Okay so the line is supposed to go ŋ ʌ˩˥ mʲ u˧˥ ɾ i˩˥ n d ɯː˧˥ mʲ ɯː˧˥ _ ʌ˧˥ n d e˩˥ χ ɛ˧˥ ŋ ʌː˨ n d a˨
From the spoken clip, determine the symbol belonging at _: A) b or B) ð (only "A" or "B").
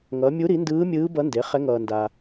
A